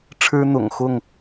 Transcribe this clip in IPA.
ʈ͡ʂʰ ɻ̩˦ n̪ ʊ̰˨˩ ŋ x ʊ˥˨ ŋ

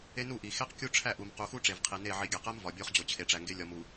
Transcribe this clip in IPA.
e˦ n u˦˨ ʔ i˨ x e˦ q kʲ u˦ ʈ͡ʂʰ æ˦˨ ʔ u˨ m q u˨ x u˦ ʈ͡ʂ e˨ v qʰ i˨ n e˦˨ ʕ i˨ ɡʲ æ˨ q æ˦ m v ɒ˨ bʲ o˦ χ d͡ʑ o˨ t͡ɕʰ e˨ ʈ͡ʂ æ˨ ŋ ɡ e˦ lʲ ɒ˨ m u˨

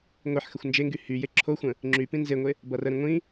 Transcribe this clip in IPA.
ŋʷ i ħ x ə xʷ n d͡ʒ e ŋ ɡ y h y j e ǁʰ o xʷ ə̃ | ŋ͡ǁ y p ĩ n z e ŋʷ e | b ʌ r ə ɾ ĩ ŋʷ ĩ

